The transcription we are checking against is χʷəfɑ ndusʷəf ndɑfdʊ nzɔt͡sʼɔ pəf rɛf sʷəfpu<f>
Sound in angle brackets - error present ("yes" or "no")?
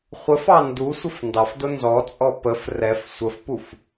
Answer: no